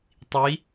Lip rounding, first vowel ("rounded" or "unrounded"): unrounded